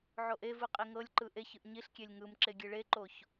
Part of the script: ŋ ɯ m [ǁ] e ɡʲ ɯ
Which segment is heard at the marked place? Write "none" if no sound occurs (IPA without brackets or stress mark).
ǁ